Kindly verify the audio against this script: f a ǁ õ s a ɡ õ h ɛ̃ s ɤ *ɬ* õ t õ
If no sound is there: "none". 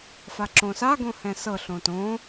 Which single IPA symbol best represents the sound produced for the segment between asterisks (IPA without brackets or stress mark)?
ɬ